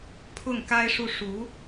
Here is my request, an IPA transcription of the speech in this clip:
pʰ ʊ˥˩ ŋ k a˥ ɪ̯ ʂ u˥˩ ʂ u˧˥

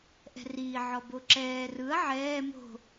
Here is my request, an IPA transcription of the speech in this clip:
ʔ ɛ̤ r iː ʕ ɔ b o ǁ ɛː r ɯ ɐ̯ ʕ ɛː m o̤

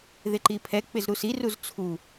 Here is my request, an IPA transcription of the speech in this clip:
ð ɪ ǃ i pʰ ɛ k͡p ɪ z ɾ u s i r u z t͡sʰ u

